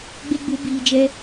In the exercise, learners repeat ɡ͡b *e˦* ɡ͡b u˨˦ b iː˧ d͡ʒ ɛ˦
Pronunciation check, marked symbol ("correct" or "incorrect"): correct